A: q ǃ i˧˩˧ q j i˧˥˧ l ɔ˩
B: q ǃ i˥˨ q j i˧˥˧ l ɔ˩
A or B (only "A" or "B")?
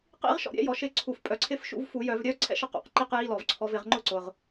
B